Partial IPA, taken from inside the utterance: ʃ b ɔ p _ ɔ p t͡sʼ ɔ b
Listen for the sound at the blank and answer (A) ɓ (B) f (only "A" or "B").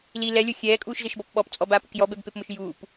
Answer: A